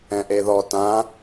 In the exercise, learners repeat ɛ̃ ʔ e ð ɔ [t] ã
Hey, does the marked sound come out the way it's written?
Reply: yes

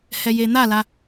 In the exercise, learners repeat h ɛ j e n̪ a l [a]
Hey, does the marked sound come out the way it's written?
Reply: yes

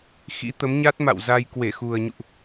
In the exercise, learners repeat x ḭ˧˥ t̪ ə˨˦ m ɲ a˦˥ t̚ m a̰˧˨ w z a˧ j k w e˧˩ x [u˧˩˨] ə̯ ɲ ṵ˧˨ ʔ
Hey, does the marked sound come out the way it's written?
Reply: no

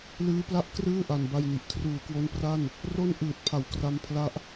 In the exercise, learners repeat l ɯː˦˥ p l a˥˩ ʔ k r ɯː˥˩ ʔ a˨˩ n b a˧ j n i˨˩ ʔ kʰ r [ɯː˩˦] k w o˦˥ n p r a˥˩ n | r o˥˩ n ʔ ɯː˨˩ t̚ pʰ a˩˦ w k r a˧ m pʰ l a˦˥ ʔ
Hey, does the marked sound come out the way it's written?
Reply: no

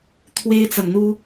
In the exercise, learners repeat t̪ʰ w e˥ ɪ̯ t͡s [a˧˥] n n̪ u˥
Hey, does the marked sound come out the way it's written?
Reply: no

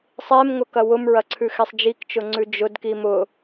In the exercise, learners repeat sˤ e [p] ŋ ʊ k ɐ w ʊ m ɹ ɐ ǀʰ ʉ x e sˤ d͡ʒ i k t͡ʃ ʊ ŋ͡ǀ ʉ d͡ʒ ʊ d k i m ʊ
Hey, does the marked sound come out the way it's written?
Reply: no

